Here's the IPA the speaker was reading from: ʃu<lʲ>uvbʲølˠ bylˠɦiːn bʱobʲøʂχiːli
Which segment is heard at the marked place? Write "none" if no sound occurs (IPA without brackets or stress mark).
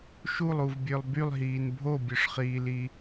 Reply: lˠ